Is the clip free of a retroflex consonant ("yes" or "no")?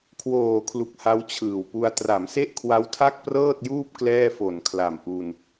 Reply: yes